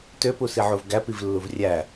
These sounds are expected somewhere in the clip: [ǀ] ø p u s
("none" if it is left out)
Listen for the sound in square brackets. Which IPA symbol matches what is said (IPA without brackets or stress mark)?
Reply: t